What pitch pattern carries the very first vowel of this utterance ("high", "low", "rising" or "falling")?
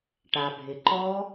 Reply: low